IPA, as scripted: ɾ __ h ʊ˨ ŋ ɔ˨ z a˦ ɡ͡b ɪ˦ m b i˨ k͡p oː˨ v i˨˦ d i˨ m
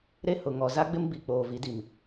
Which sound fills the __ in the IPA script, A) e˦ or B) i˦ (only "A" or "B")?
A